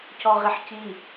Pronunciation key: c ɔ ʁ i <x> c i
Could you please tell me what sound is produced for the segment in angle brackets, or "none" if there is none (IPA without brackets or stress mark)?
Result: ħ